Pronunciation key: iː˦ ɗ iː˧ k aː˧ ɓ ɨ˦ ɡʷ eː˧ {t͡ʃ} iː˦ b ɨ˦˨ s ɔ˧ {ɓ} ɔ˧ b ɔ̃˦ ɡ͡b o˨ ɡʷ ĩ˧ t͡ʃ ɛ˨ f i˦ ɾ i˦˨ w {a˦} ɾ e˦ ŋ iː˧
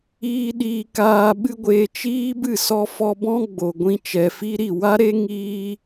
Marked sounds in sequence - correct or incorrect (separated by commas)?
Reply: correct, incorrect, correct